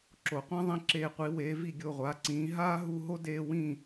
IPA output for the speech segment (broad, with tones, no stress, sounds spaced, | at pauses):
ǁ o˩˧ qʷ ã˥ ðˤ ĩ˧ ǁ eː˧˩ qʷ i˩˧ w eː˩˧ v i˧˩ ɡʲ o˧˩ ʁʷ aː˩˧ ǀ ĩː˩˧ ɦ aː˥ ɦ u˧ ɦ o˥ d eː˧ w ĩ˧˩